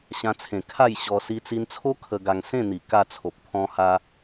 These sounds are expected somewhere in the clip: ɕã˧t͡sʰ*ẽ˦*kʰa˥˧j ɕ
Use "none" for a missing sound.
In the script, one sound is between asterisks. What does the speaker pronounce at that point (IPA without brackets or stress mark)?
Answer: ẽ˨˩